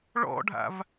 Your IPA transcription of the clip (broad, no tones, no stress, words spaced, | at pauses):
ɭɔ̰ɖʱa̰v